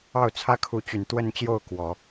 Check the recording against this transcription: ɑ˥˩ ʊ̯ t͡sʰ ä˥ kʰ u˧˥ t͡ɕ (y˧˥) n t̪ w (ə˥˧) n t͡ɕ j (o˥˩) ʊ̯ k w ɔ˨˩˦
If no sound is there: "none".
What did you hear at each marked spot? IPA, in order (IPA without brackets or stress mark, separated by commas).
y˨˩, ə˥˧, o˥˩